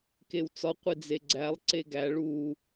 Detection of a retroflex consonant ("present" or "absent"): present